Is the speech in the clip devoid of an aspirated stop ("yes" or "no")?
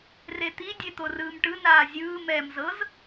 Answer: yes